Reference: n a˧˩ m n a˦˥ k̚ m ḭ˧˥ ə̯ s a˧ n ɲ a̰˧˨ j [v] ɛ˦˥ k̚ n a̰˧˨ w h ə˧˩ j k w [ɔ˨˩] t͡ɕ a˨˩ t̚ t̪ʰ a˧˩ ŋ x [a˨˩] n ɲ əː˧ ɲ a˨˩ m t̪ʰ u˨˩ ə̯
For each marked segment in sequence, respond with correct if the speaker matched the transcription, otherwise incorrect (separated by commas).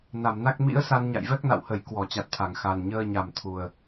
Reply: correct, correct, correct